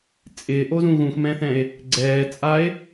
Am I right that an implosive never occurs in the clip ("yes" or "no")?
yes